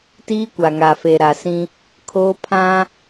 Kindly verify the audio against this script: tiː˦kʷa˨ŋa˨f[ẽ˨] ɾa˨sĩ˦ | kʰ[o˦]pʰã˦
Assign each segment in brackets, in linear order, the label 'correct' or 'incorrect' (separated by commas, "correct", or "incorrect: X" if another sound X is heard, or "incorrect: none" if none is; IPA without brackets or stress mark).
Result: incorrect: e˨, incorrect: oː˦